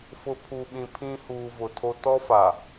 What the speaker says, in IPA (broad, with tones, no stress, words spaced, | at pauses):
fʊ˨pʰu˨ɓĩ˨ pʰĩ˦ huː˨ vʊ˨tʰo˦ tɔ˦fa˨